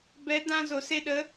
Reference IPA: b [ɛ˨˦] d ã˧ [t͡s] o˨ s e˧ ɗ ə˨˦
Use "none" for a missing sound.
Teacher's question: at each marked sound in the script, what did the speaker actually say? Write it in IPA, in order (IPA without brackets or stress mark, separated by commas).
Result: ɛ˨˦, z